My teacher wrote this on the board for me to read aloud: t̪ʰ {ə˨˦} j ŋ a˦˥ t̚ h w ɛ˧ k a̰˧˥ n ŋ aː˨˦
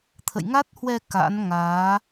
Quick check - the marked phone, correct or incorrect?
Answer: incorrect